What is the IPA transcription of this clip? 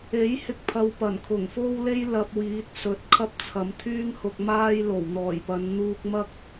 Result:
e˨˥ j h ɪ˧ k̚ pʰ ɐ˥ w p ɐ˨˩ n kʰ ʊ˨˩ ŋ f o˥ w l e˥ j l ɐ˧ p̚ w iː˨˥ t̚ s ɵ˨˥ t̚ kʰ ɐ˥ p̚ t͡sʰ ɐ˨˥ m t̪ʰ yː˥ ŋ h ʊ˨ k̚ m aː˥ j l o˨˩ w n̪ ɔː˨˩ j p ɐ˨˧ n n̪ uː˧ k̚ m ɐ˥ k̚

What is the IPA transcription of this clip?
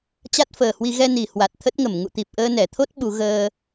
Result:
t͡ɕ a˦˥ t̚ f əː˨˩ h w i˧ ɣ ɛ˧ n i˨˩ h w a˨˩ t̚ t̪ʰ ə˦˥ t̚ ŋ ə˧˩ m ŋ ṵ˧˨ t̪ i˨˩ p̚ ʔ əː˧ n ɛ˧˩ t̪ʰ o˦˥ t̚ ɓ u˨˦ ɣ əː˧

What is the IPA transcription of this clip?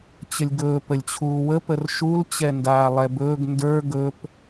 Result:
t͡ɕ ə lʲ ɡ ɵː p ə lʲ t͡ɕʰ uː w ə p ə r ʃ u l t͡ɕ ɛ n d aː lˠ ɛ b ɵː ɡ n d ə˞ ɡ ɵ p

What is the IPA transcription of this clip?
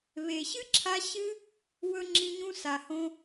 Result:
β e˨ ɕ ɨ˦ ǁʰ a˧ ɕ ɨ˦ | w ɵ˧ ŋ͡ǁ ĩ˧ ɲ ũ˧ s a˨ h õ˧

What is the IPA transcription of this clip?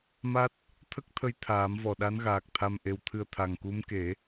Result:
m a˦˥ t̚ | t̪ʰ ə˦˥ k̚ t̪ʰ ə˧ j t̪ʰ aː˨˩˦ m v ɔ˨˩ ɗ a˧˥ n ɣ aː˨˩ k̚ t̪ʰ a˧ m ʔ e˧˥ w t̪ʰ ɨ˧ ə̯ t̪ʰ a˨˩ ŋ k u˧˥ m k e˨˩˦

